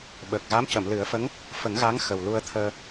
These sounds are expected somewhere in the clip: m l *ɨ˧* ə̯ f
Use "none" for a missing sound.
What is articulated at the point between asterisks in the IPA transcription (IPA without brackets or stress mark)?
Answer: ɨ˨˩˦